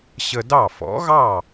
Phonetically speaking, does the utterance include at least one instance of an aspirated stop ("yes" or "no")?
no